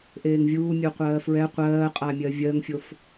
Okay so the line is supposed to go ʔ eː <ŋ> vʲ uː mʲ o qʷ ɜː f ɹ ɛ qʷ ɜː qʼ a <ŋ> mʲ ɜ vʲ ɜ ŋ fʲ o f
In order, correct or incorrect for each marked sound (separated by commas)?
correct, incorrect